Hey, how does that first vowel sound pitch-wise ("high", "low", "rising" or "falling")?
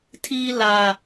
high